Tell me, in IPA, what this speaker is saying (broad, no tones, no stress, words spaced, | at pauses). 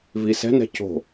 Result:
visɛ̤nɛ̤ co̤